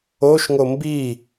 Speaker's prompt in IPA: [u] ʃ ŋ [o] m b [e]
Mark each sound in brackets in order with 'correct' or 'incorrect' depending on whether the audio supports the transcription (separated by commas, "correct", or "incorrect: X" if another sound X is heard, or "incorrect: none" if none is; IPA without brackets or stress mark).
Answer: incorrect: o, correct, incorrect: i